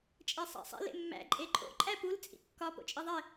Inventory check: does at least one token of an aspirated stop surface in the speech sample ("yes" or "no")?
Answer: no